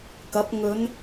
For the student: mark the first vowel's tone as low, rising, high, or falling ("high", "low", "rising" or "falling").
rising